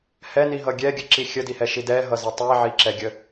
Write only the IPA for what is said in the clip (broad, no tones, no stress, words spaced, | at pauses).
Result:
hɛniɦʌ ɡʲɛɡʲəǁi xʲədihɛʃi dɛɦʌzʌ tˤiʕiǁɛɡʲə